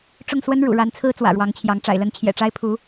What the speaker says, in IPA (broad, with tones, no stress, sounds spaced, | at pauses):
ʈ͡ʂ ʊ˥˩ ŋ s w ə˥ n ɻ ṵ˨˩ ɻ a˧˥ n t͡sʰ ɹ̩˥ t͡s w ä̰˨˩ ɻ w ɑ˧˥ ŋ t͡ɕʰ j ɑ˧˥ ŋ ʈ͡ʂ a̰˨˩ ɪ̯ l ə˧˥ n t͡ɕʰ j ɛ̰˨˩ ʈ͡ʂ a˥ ɪ̯ pʰ u˧˥